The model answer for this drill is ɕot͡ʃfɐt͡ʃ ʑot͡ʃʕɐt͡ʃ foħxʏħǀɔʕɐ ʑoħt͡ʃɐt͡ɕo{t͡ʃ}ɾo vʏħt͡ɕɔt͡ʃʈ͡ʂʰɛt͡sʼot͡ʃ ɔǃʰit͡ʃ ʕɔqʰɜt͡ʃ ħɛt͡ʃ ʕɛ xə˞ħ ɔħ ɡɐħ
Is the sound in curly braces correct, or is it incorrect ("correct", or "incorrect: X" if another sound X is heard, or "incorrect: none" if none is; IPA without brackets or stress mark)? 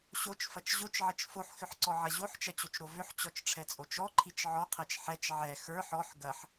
correct